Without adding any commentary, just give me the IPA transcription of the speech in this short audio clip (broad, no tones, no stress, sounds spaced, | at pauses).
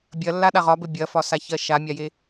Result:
bʲ ɐ lː a ɗ a ʁ ɒ b ɘ bʲ ɐ f ɒ s a ç ɜ ʃ a mʲ a j e